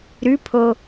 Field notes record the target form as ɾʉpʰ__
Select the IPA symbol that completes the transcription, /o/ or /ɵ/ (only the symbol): o